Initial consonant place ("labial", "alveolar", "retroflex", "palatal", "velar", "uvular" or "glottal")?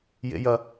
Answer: palatal